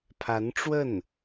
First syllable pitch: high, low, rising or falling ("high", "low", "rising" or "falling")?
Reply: rising